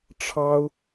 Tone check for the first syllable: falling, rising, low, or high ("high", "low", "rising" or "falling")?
high